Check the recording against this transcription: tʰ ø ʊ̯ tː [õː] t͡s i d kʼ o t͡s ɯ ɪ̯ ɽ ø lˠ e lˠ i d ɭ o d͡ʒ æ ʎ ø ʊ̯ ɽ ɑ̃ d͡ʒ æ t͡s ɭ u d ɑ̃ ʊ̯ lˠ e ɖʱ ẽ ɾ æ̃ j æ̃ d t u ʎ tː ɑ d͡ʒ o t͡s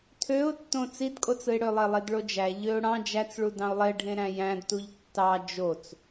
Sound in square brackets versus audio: incorrect: õ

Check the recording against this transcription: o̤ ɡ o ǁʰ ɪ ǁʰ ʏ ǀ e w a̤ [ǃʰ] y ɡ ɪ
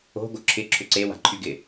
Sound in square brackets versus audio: correct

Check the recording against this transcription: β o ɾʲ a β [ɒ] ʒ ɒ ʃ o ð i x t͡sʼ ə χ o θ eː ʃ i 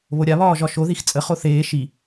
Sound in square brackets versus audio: incorrect: ɒː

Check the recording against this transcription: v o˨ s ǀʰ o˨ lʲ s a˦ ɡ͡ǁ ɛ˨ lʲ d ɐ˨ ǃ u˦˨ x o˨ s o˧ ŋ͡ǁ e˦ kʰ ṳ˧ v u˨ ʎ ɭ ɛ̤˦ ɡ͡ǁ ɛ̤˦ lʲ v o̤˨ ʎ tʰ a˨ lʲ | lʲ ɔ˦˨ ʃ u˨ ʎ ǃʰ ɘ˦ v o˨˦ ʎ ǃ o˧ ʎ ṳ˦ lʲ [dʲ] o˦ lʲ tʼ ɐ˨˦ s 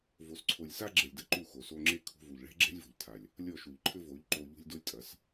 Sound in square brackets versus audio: incorrect: d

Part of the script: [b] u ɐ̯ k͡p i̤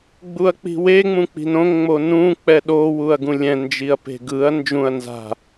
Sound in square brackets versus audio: incorrect: ɡ͡b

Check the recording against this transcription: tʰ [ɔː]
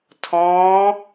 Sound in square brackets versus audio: incorrect: ɔ̃ː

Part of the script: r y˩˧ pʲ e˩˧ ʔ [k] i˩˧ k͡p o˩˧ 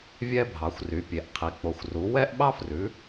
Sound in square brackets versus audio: incorrect: qʰ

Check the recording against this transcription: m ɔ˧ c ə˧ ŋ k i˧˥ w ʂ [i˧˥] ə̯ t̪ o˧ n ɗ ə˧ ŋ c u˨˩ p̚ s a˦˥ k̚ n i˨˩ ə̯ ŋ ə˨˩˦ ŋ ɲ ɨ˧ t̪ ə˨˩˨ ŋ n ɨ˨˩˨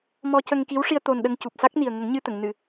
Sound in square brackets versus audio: incorrect: i˧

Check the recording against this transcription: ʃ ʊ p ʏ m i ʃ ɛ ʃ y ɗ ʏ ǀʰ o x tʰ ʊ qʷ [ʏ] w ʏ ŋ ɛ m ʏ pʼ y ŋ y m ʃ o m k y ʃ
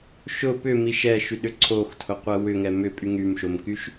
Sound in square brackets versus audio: incorrect: ɛ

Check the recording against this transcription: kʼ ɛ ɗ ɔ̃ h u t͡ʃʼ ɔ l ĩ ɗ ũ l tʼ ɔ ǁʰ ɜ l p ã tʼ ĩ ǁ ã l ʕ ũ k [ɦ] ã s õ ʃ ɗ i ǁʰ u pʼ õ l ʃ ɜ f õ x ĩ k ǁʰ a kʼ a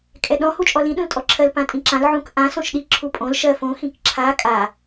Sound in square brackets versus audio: incorrect: ʔ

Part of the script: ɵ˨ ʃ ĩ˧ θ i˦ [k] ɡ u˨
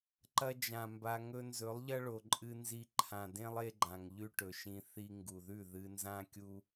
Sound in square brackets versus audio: incorrect: ŋ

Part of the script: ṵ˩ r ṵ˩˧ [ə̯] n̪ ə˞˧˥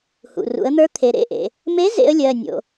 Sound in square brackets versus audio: correct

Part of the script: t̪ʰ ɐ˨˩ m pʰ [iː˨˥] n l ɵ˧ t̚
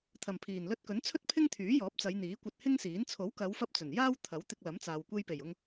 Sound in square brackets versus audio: incorrect: iː˨˩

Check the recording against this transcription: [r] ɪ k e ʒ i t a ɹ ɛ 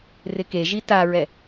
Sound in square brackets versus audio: correct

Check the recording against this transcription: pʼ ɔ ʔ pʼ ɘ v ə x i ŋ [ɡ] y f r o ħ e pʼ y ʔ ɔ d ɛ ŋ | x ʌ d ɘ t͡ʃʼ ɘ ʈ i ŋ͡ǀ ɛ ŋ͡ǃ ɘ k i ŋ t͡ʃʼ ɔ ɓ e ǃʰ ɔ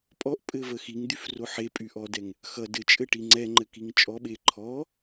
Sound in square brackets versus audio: incorrect: d̪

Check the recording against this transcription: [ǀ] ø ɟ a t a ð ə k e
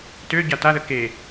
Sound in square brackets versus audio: incorrect: t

